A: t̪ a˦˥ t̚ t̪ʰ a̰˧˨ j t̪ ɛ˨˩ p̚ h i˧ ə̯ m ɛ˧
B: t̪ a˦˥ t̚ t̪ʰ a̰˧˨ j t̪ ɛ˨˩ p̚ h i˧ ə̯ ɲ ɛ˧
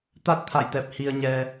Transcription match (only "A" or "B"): B